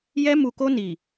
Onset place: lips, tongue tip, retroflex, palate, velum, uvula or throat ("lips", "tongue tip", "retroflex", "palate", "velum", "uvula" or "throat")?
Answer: palate